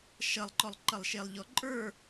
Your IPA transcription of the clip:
ʃ ʌ lˠ ǃ ɔ lˠ ǃ ʌ lˠ ʃ e lˠ ʎ ɔ ǃʼ ə˞

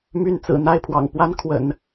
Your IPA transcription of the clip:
m y˥˩ n t͡s ɹ̩˨˩ n̪ a˥˩ ɪ̯ pʰ w ɑ̰˨˩ ŋ p w a˥ n kʰ w ə̰˨˩˦ n

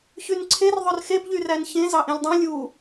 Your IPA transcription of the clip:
ç y n ǀʰ e r ðˤ ø r x e b ʎ y r æ n ç ẽ z ɑ ʔ ẽ lʲ dˤ õ lʲ u

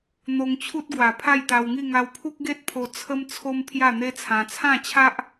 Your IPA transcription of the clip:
n̪ o˧ ŋ t͡ɕʰ u˦ t̚ ɡ w a˨˩ pʰ a˥˧ j t̪ a˧ w ŋ i˥˧ ŋ a˧ w pʰ u˦ k̚ ɡ e˦ t̚ pʰ o˧ t͡sʰ ə˦ m t͡sʰ o˦ m pʰ j a˥˧ n̪ e˦ t͡sʰ ã˧ t͡sʰ ã˥˧ t͡ɕʰ a˦ ʔ

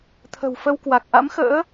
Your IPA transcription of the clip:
t̪ʰ ə̤˨˩ w f ə˧ w k w a˨˩ k̚ ʔ a̰˧˥ m x ə̰ː˧˥

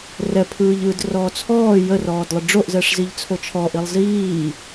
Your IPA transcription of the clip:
r ɛ pʰ ɯː ʎ ɯː d r ɔː t͡sʰ ɔː j ə r ɔː d lˠ ə ɖ͡ʐ o ʔ z ɛ ʂ z i ʎ t͡sʰ o t͡ʃʰ ɔ ʔ i lˠ z iː

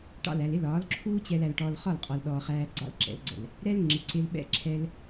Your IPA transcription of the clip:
ʈ ɑ̰˦˨ l æ˨ l ɪ˦ l ɒː˨˦ l ǁʰ uː˦ t͡ɕ ɛ˧ l æ˧ l ʈ ɔ˧ l χ ɒ˦˨ l qʼ ɔ˨ l ɗ ɔː˧ χ æː˧ ɡ͡ǀ ɑ̰˦˨ l ǁ ɛ̰˨˦ l ɡ͡ǀ ɛ̰˨ l | ɾ ɛ˦ l ŋ͡ǁ ɪ˨ ǀ ɪ˧ l ɓ ɛ̰˦˨ ǁʰ ɛ˦ l

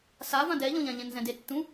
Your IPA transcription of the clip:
s a v ã d ɛ ʎ ɔ̃ ʎ ã ʎ ɛ̃ n z ɛ̃ d e tː ũ

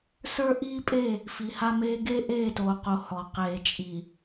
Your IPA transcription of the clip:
s ə˞˦ ʔ iː˦ pʼ e˦˨ | f i˨ h a˦ m eː˦ ɡ eː˦ ʔ eː˦˨ t oː˨ q o˨ h ɔ˨ q eː˨ t͡ʃʼ i˨

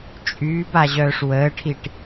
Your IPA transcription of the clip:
t͡ʃʼ yː b a ʑ œː ʂ w əː ʈʰ i ʈ

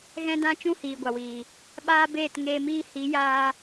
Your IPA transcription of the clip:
ɣ ɛ̃˦ d ã˦ t͡ʃ ũ˦ h iː˨ ɡʷ a˨ w iː˨ | ɓ aː˦ b eː˦˨ t ŋ eː˧ m iː˧ h i˨˦ j aː˧

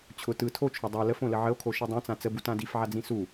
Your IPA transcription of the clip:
t͡ɕʰ ʊ t ɯ tʰ o t͡ʃʰ o dˤ a l ə f õ l ə ʕ ə o̯ kʰ o ʃ ɯ dˤ ã t͡s ã t͡s ə b u t ã d i f ʕ a d͡z ĩ s u

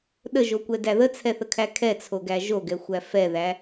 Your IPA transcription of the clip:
ɗ ə ʒ o kʷ ɛ d æ ð ə t͡sʰ ɛ θ ə kʰ æ kʰ ɛ t͡sʰ o ɡ æ ʒ o ɡ ɛ xʷ æ f ɛ ð æ

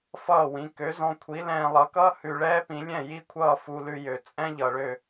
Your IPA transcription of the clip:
f ʌː˥˩ w ĩ˩˥ k ø˩˥ z ɔ̃˧ kʷʰ i˩˥ l ɛ̃ː˧ lˠ ʌ˩˥ k ʌː˥ h ʉ˧ ɭ ɛː˥ p ĩ˩˥ lʲ ɛ̃˥˩ j i˥ kʷʰ ʌː˥˩ f u˧ l ʉ˧ j ø˩ t͡sʼ ɛ̃˥ ʎ ʌ˩ ɭ ø˥˩

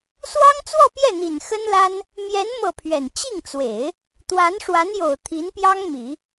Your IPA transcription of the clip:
s w ɑ˥ ŋ t͡s w ɔ˥˧ p j ɛ˥˩ n̪ i˨˩ n x ə˥ n l a˥ n | m j ɛ˧˥ n m ɤ˥˩ pʰ ɥ ɛ˨˩ n t͡ɕ i˥˩ ŋ t͡s w e˨˩˦ ɪ̯ | t̪ w a˧˥ n ʂ w a˧˥ n j o˨˩ ʊ̯ t̪ʰ i˧˥ n p j ɑ˥ ŋ m i˨˩˦

